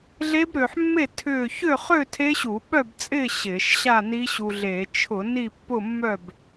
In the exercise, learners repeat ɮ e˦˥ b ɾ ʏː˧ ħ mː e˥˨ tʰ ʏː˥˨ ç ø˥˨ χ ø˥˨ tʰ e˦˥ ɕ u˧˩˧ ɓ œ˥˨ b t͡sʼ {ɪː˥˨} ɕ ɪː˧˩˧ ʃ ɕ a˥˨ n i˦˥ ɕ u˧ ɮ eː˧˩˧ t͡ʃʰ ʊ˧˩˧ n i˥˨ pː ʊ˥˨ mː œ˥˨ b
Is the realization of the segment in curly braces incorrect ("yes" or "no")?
no